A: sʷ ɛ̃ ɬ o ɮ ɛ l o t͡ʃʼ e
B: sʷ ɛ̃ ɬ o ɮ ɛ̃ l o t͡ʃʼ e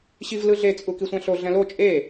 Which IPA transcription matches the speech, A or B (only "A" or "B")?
B